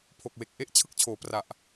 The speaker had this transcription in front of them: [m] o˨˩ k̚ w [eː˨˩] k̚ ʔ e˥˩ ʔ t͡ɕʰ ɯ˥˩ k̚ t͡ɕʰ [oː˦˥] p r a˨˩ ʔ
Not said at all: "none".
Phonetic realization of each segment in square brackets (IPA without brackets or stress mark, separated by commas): pʰ, e˨˩, oː˩˦